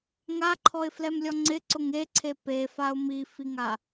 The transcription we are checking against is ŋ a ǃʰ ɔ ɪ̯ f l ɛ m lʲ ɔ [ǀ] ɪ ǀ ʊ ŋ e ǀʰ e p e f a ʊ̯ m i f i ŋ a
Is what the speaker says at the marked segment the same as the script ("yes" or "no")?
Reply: no